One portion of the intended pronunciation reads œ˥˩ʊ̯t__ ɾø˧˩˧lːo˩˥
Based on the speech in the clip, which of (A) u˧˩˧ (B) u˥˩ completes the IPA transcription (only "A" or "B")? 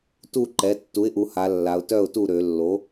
B